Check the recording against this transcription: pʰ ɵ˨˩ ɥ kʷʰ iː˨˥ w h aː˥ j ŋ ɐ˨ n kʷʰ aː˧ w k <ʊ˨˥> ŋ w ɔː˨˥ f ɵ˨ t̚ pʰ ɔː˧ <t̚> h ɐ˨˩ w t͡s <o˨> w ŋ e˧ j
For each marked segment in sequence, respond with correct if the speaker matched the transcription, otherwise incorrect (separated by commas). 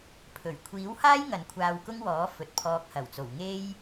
incorrect, incorrect, incorrect